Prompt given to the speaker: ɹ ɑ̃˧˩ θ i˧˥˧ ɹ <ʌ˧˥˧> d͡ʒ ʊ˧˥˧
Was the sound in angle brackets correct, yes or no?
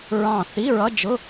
yes